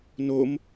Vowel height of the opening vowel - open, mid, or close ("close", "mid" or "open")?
mid